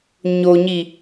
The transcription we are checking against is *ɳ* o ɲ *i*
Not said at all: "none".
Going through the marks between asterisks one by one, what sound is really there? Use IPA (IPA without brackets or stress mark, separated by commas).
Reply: ɲ, i